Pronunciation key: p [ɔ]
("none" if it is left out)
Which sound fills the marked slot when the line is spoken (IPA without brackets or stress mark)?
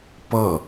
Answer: ʌ